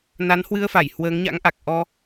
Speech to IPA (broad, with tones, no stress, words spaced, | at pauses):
na˨˦nhwɨ˧ə̯fa˧˩j hwəː˨˦ŋɲa̰˧˥ŋʔa˨˩k̚ʔɔ˧